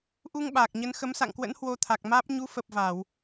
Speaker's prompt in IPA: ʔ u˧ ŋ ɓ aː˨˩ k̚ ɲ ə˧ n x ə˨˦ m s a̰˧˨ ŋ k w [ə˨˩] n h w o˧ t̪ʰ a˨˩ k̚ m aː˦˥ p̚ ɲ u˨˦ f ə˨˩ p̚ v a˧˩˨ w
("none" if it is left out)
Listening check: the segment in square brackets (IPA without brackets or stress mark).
ə̰˧˥